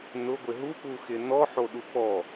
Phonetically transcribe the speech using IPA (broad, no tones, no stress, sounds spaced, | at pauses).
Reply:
n ʊ ɡʷ ɪ ɦ u k͡p u x ɪ n ɔ ħ o ɗ u k͡p ɔ